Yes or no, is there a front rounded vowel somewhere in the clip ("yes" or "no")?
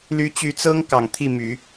yes